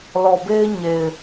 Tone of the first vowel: low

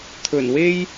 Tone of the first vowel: low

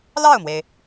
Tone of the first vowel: falling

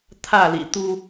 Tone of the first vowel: falling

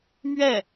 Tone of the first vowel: falling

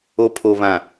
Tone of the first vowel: low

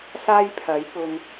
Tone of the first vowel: high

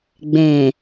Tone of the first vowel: low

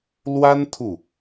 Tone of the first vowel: high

